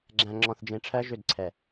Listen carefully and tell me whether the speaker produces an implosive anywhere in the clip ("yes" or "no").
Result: no